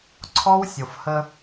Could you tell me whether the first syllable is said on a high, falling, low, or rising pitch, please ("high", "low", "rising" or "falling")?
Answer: high